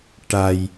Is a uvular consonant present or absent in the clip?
absent